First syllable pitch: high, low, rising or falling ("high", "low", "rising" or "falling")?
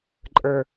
low